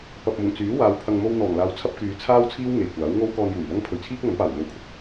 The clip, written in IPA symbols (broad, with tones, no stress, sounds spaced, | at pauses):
p ɐ˨ p̚ m ʊ˨˩ ŋ t͡s yː˨˥ w aː˨˧ w pʰ ɐ˨ ŋ m o˧ w n̪ ɔː˨˩ ŋ l aː˨ w t͡sʰ ɐ˥ p̚ k yː˨˧ t͡sʰ aː˥ w t͡sʰ iː˥ w ŋ e˨˩ j kʷ aː˨˥ w ŋ o˥ w k ɔː˧ n j uː˨˩ j l ɐ˥ ŋ pʰ ɵ˨ ɥ t͡sʰ iː˥ k̚ ŋ ɐ˨˥ n p aː˨˩ w n̪ o˨˧ w kʰ ʊ˧ k̚